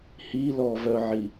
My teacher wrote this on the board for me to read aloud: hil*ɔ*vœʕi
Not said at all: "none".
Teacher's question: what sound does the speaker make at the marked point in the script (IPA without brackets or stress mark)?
ɔ